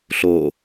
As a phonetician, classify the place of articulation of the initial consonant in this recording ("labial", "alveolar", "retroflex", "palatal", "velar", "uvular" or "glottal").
alveolar